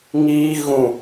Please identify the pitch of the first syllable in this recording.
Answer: high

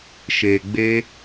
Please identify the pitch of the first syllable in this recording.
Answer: low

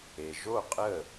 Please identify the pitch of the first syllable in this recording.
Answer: low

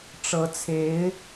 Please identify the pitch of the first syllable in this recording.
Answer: rising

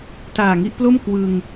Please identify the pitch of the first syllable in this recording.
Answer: low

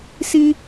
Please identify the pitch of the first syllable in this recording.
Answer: high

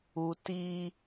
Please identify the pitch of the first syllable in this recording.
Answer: high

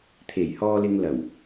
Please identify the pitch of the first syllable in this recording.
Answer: low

